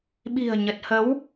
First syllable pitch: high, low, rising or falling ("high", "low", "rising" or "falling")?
low